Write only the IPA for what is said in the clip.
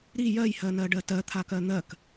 ɾ i j ɜ j h ɜ n ɜ ɖ ɜ t ɜ t̪ʰ a k ɜ n̪ ɜ k

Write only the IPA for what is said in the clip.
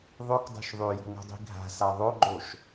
ðˤ ɵ k dˤ o̤ ʃ ðˤ ʉ j o̤ ŋ o̤ dˤ i̤ ɡʱ a̤ s a ðˤ o ɡ͡ǃ o ʃ

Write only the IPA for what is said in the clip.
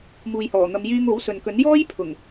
m uː˨ j h ɔː˨˩ n̪ ɐ˨˧ m j yː˧ ŋ o˨˥ w s ɵ˨ n k ɵ˨˥ n j ɔː˥ j pʰ ʊ˨˩ ŋ

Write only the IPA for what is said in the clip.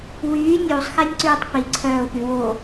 w yː nʲ uː sˤ x ɛ nʲ ǀ yː tˤ p i ǀʰ œː ʊ̯ p y w o

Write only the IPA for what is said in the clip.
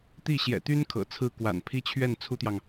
t̪ i˥˩ ɕ j ɛ̰˨˩ t̪ y˥ n kʰ ɤ̰˨˩ t͡sʰ ɹ̩˥˩ k w a̰˨˩ n pʰ i˥ t͡ɕʰ ɥ ɛ˥˩ n t͡sʰ u˥ t̪ j ɑ˨ ŋ

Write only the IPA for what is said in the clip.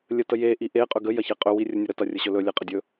lʲ ə t ə j e ʔ i ʔ e qʼ ɵ ɡ ə j ɐ ç e qʼ ɵ w i rʲ ə nʲ ɵ ɾ ə t ɐ rʲ ə ɕ ɵ l ɵ lʲ e qʼ ə dʲ ɵ

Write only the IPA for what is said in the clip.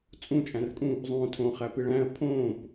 t͡sʼ ũ t͡ʃʼ æ̃ r kʼ ũ | zˤ õː tʰ õ χ æ p i ɭ æ̃ ə̯ pʰ õː p

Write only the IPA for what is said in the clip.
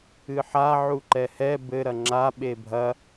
ɨ ħ a ʕ u ǃ ɛ h ɛ b ɘ ɾ ɐ ŋ͡ǁ a ɓ e bʱ ɐ

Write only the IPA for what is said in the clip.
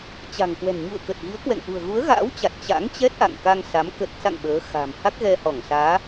t͡ɕ a̤˨˩ ŋ k w ɛ̤˨˩ n ɲ ṵ˧˨ ə̯ k ə˨˩ t̚ ɣ i˨˦ ə̯ k w ɛ̰˧˨ ŋ ʔ ṳ˨˩ ə̯ ɣ u˨˦ ə̯ ɣ a̰ː˧˥ w t͡ɕ a˨˩ t̚ t͡ɕ a̰˧˥ ŋ t͡ɕ ɛ˦˥ t̚ ʔ a̰˧˨ ŋ k a˧ ŋ s a˨˦ m k ə˨˩ t̚ s a̰˧˨ ŋ ɓ əː˨˦ x a̤˨˩ m h a˦˥ k̚ ɣ ɛ˧ h ɔ˧˩ ŋ s aː˨˦

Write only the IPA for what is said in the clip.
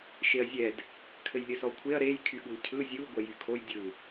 ʃ e ɐ̯ zʲ ɛ d | kʰ ɘ j lʲ ɘ s ɔ kʷʰ e ɐ̯ ɾ e j kʰ y ɠ u l cʰ ɯ zʲ u ɡʷ ɛ j y kʰ o j dʲ ɯ

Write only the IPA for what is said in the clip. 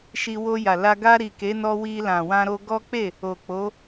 ʃ i˧ w o˧ j a˨ l a˧ ɡ a˧ ɾ i˨ k e˨˦ n ɔ˧ w i˧ l ã˨ w ã˧ ɾ o˧ ɡ ɔ˦ k͡p e˦˨ | o˨ k͡p o˨˦

